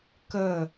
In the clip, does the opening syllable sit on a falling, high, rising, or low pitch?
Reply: falling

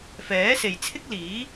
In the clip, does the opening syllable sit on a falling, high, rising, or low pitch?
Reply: rising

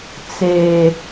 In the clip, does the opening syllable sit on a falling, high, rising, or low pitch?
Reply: high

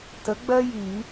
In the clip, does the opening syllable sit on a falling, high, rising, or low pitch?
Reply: rising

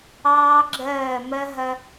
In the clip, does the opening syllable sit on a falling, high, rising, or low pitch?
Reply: high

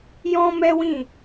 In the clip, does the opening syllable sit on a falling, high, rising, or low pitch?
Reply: high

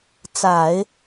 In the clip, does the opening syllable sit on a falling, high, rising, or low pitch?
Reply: low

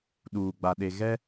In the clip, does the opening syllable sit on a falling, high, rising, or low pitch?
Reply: low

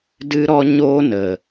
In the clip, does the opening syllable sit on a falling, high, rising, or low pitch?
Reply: high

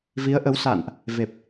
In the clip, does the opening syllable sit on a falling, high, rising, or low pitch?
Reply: rising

